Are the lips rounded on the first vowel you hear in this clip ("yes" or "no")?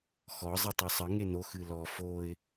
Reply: yes